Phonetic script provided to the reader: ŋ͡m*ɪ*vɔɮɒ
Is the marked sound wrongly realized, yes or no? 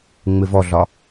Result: no